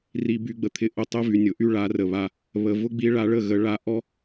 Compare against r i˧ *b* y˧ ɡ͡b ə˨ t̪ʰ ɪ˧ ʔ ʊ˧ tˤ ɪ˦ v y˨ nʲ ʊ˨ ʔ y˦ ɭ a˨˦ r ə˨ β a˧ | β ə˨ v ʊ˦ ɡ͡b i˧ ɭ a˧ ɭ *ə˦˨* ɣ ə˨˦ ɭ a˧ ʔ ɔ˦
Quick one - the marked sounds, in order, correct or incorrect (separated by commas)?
correct, correct